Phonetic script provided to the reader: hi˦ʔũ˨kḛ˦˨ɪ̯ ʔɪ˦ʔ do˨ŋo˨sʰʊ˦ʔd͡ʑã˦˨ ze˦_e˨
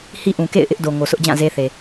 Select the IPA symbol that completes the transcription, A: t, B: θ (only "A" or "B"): B